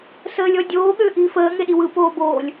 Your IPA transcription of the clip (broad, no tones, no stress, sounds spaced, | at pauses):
s əː lʲ ɔ dʲ oː ɠ ʏː ʔ iː f əː ŋ e ɗ i w ɯ p oː b oː lʲ